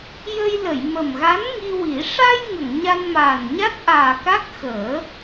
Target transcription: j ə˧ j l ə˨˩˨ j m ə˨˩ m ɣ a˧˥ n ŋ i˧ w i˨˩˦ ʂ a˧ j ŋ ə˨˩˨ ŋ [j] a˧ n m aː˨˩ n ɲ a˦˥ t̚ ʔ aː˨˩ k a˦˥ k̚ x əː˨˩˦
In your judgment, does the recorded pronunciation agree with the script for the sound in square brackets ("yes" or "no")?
no